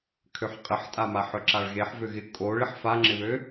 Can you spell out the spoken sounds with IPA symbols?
kʰ ø ħ qʼ ɪ ħ tʼ a m a ħ œ ǁ a ɭ ɣ e ħ v ø ɣ ɪ kʼ o ɭ ɪ ħ f a ŋ͡ǁ ɪ β ø

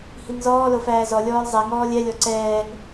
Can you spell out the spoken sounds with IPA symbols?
h i ŋ z ɔː l o f æː z ɔ lʲ ɔː l zˤ ɛ ŋ ɔː lʲ ɛ lʲ ɔ ǀ ɛː ŋ

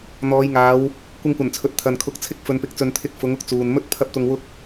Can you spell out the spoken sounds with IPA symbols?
n̪ ɔː˨˧ j ŋ aː˨˧ w | kʷ ɪ˧ ŋ kʷ ɐ˨˩ n t͡sʰ ɵ˨ t̚ t̪ʰ ɐ˨ n kʰ ʊ˨˥ k̚ t͡sʰ ɪ˥ k̚ f ɵ˧ n p ɪ˧ k̚ t͡s ɵ˧ n t̪ʰ ɪ˧ k̚ f ʊ˨˥ ŋ ʊ˧ k̚ t͡s uː˨ n m ɵ˥ t̚ pʰ ɐ˥ p̚ t̪ ʊ˧ ŋ w ʊ˥ k̚

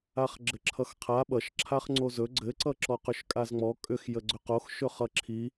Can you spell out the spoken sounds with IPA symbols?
a χ ɡ͡ǁ ɘ ǁʰ ʌ x qʰ a ɓ ʌ ʃ ǁʰ a χ ŋ͡ǀ o z ɵ ɡ͡ǀ ɘ ǀ ʌ ǁ ɔ q ʏ ʃ kʼ a z ŋ͡m ɔ kʼ ʏ x j ə ɡ͡ǀ ʏ q o x ʃ ɵ χ ʌ ǁʰ i

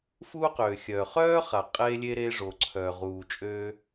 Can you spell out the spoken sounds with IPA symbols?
f uː˥ q øː˩ xʲ œː˩ χ œː˥ χ a˩ qʼ eː˥ lʲ e˥ ɾ eː˥ ʐ o˩ ǀʰ œː˩ ʁ uː˩ t͡ʃʼ øː˥

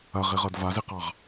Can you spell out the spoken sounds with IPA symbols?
ɐ ʁ i ʁ ɤ d v a z i q ɑ ʁ

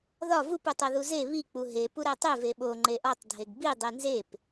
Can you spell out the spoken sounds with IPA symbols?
ð ɒ v u p u tˤ o ð u z e β i k͡p u ɦ e p u ɾ æ tˤ e v e ɓ o ŋ͡ǃ e ʔ ɒ tˤ dʱ e ɡ b i dˤ i n z e p

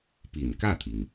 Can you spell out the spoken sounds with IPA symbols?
p i˨˩ n k ä˥˩ t̪ʰ i˩ ŋ

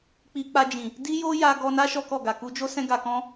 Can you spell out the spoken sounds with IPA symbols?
k͡p i˧ k͡p a˧ d͡ʒ ĩ˨ | d i˦ j o˦ j a˦ ɡ ɔ˦ n a˦ ʃ ɔ˦ k ɔ˦˨ ɡ a˨ k u˧ d͡ʒ o˦ s ɛ̃˦ ɡ a˧ k ɔ̃˦

